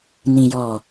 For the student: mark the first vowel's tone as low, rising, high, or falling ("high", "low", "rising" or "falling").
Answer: low